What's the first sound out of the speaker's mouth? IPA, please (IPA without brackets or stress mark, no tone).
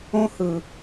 õ